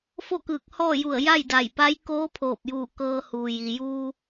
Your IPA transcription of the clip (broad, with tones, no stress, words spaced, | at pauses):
fo˥˨kɯː˧˩k̚hɔː˥˨ju˧˩ə̯ ja˥˨jda˧˩jpa˧˥j koː˧˥pʰoː˧˩p̚juː˧˩ kɤː˧huː˩ ji˩juː˧